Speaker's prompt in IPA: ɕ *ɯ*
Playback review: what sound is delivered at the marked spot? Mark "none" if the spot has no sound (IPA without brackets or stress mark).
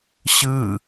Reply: ɯ